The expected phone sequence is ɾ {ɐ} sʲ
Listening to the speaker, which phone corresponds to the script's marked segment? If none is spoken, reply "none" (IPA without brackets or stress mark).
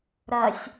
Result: ɐ